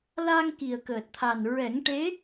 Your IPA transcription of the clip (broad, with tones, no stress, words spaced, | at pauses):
la˧ŋ ki˨˩ə̯kəː˨˩t̚t̪ʰa˨˩n ɹɛ˨˩˦ŋʈe˧˥